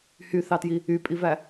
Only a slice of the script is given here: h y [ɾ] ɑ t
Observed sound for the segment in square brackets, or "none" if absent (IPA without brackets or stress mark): θ